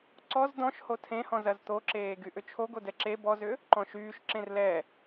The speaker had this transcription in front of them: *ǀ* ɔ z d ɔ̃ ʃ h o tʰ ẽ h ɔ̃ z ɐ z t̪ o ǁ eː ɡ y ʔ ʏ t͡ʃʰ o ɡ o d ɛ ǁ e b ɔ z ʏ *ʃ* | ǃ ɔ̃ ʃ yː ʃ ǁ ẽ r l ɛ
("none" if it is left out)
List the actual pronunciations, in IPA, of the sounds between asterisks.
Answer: ǀ, none

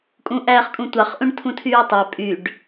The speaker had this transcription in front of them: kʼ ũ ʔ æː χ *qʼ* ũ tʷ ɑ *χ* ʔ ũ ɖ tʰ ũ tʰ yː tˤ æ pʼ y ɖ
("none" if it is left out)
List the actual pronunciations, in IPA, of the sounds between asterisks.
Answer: kʼ, χ

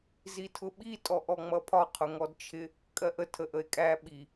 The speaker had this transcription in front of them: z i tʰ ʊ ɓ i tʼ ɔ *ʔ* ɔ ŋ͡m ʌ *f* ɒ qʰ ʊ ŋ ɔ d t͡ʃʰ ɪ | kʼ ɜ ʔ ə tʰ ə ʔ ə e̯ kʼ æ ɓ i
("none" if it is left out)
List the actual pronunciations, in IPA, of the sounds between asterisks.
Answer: ʔ, pʰ

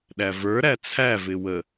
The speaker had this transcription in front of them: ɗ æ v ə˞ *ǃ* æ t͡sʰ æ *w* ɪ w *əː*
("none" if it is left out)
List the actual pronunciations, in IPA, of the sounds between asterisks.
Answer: ɾ, v, ə

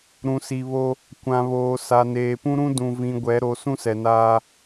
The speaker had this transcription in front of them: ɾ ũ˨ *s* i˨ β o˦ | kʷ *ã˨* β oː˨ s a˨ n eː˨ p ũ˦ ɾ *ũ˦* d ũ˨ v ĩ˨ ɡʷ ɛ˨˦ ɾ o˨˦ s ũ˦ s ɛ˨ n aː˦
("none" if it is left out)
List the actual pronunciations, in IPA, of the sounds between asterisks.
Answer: s, ã˨, ũ˦

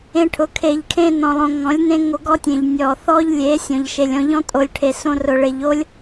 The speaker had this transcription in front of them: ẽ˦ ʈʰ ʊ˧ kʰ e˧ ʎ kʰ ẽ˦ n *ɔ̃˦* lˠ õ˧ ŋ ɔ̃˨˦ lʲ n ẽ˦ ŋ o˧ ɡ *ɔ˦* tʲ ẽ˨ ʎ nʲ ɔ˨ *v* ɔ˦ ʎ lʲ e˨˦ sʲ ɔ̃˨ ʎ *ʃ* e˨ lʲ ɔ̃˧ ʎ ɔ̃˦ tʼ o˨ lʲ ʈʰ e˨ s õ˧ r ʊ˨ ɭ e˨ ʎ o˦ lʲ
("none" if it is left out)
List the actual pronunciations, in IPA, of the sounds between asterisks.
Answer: ɔ̃˧, ɔ˦, θ, ʃ

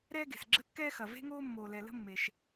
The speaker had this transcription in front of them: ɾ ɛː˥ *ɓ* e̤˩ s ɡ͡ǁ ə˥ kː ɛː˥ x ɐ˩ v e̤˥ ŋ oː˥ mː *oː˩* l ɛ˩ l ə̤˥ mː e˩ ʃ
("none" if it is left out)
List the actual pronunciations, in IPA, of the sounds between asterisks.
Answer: ɡ, oː˩

